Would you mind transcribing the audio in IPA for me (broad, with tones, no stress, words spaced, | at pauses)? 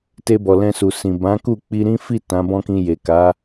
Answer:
te˧bɔ˨ lɛ̃˧su˨sĩ˨ bã˨˦ ku˦˨ k͡pi˧ɾĩ˦fi˦˨ tã˨˦bɔ̃˦kĩ˧ je˨ka˨˦